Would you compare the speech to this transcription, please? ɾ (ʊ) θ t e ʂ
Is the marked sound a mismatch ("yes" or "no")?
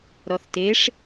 yes